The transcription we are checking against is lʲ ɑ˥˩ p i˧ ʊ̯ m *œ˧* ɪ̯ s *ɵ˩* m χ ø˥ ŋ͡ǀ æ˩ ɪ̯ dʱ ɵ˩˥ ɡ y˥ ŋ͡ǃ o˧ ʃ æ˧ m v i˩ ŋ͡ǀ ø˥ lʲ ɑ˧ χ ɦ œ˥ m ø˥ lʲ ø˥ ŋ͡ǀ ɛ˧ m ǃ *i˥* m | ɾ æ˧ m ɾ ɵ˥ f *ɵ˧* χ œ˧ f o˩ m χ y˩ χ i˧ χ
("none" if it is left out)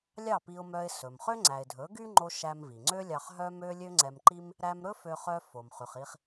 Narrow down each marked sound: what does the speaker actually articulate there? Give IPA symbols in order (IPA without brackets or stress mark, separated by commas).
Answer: œ˧, ɵ˩, i˥, ø˧